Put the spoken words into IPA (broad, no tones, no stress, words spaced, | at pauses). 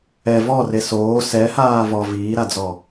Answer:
ɛ vɔre soː sɛhaː vɔ viːɾad͡zɔ